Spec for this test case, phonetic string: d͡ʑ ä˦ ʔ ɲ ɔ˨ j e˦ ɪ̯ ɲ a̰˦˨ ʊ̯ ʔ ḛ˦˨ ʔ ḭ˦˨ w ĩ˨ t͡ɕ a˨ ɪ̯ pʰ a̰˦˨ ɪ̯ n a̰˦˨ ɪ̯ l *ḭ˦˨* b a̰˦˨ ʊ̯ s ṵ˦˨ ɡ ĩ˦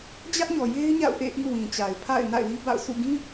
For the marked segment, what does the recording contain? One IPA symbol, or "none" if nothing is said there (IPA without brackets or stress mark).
i˦